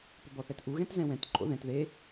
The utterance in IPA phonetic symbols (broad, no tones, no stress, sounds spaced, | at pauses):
p ʏ b ɔ θ ɛ t ʔ u ɣ ɛ̃ t z ɛ̃ w ɛ̃ t ǃʼ o̰ ð ɛ̃ t ð e